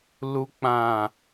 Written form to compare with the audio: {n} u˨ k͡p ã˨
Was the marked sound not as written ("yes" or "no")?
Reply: yes